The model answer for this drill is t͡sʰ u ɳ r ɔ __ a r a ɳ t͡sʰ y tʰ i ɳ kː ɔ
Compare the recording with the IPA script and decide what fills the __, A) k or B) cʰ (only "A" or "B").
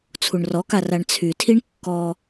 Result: A